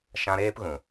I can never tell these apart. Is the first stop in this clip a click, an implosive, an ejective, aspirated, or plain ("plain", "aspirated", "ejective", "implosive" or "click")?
plain